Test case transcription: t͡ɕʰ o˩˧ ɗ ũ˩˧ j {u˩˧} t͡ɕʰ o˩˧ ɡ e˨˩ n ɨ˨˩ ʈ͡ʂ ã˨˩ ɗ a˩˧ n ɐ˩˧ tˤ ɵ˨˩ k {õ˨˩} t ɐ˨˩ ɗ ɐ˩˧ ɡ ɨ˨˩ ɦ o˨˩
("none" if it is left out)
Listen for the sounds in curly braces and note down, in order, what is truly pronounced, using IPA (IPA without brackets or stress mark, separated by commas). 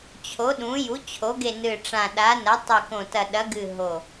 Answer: u˩˧, õ˨˩